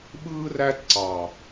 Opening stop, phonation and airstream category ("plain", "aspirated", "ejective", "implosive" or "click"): implosive